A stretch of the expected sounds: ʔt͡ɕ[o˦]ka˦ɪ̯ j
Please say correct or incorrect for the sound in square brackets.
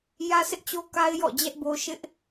correct